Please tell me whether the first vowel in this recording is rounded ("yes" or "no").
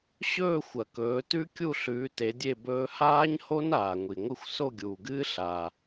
yes